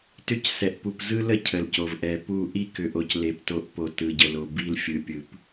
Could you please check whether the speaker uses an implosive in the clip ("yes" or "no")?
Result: no